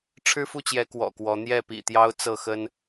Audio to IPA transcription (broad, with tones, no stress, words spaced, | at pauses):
ʈ͡ʂʰɻ̩˦fu˥˨t͡ɕjɛ˨˦ kwɔ̰˨˩kwɔ˨˦ n̪jɛ˥˨ pḭ˨˩t̪jɑ˦ʊ̯ t͡sɤ˥˨ xə˦n